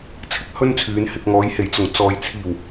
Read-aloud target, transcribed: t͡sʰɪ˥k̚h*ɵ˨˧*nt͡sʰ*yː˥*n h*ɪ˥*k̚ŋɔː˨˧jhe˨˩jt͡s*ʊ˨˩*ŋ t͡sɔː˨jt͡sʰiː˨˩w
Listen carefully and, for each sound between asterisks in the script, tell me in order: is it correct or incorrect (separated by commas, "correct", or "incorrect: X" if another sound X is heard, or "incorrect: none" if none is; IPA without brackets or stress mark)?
incorrect: ɵ˥, incorrect: yː˨˧, incorrect: ɪ˨, correct